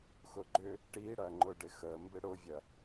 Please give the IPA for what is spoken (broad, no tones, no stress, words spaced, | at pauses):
xʊɡ͡ǃʏ | ʈiɽɐŋ͡ǃʊ ɖɪxə mbɪɽʊvʲɐ